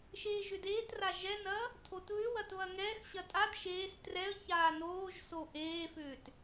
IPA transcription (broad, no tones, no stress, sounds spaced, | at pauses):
ʃ eː ʒ ʏ d eː t r a ʒ ɛ n ɐ | tʰ o t β ʏ w ɐ t β ɐ ŋ ɛː x ɕ ɐ tʼ a d ʃ eː s t r ɛ ə̯ ç aː n oː ʒ s o ʔ eː f ʏː t